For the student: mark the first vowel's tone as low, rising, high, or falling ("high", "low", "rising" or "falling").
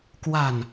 low